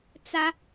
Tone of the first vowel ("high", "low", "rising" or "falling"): high